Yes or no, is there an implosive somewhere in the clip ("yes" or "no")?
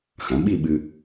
yes